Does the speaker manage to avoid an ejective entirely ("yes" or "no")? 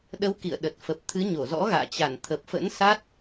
yes